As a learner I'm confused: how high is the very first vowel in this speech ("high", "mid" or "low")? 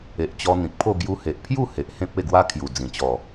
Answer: mid